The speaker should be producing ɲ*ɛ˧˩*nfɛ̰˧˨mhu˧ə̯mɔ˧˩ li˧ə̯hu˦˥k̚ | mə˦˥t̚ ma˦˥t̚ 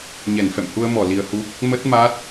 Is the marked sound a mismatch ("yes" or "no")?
no